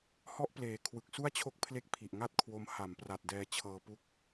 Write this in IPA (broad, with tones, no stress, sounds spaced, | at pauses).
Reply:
h ɔ˦˥ ʔ p l eː˨˩ kʰ w ɯ˨˩ k̚ s u˥˩ a̯ t͡ɕʰ o˦˥ k̚ pʰ l e˦˥ k̚ pʰ i˨˩ ʔ ŋ a˥˩ t̚ kʰ w o˧ m h a˩˦ m p r a˨˩ t̚ d ɛː˧ t͡ɕʰ ɤː˧ p u˦˥ k̚